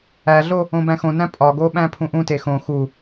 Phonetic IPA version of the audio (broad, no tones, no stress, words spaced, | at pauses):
æɮo | õbæ̃xõnæ̃ pʼɒɡo ɓæ̃pʰũʔũte xõ xu